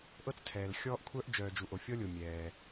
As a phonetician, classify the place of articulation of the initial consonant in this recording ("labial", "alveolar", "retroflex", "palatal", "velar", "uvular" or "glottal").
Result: glottal